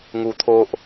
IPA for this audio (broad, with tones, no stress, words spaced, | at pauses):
ŋu˧t̪ʰo˦ʔ